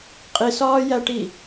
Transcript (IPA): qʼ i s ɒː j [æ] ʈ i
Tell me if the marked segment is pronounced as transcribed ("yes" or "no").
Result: yes